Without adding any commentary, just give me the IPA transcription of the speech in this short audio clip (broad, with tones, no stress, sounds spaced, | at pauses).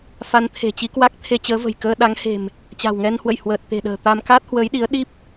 f a˧ n t̪ʰ e̤˨˩ t͡ɕ i˧ k w a˦˥ k̚ t̪ʰ e˧ t͡ɕ əː˨˦ v ə̤˨˩ j k əː˧ ɗ a˨˦ ŋ h e̤˨˩ m | t͡ɕ a̤˨˩ w ŋ ɛ˧ n h w ə̰˧˨ j h w əː˨˩ t̚ t̪ e̤˨˩ ɗ ə̤ː˨˩ t̪ a˧ m k a˦˥ t̚ h w əː˨˦ j ɗ i˨˦ ə̯ ɗ i˦˥ p̚